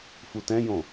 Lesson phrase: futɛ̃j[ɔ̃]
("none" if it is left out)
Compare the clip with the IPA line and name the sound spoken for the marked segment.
õ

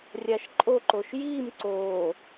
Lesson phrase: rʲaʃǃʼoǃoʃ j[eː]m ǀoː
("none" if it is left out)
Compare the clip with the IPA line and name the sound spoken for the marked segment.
iː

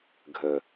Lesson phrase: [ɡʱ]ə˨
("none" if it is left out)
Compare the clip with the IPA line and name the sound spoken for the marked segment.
ɡʱ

